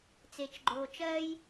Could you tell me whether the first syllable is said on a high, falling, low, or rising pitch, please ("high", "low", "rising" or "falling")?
low